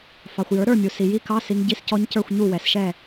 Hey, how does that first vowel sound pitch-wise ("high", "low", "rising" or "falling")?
low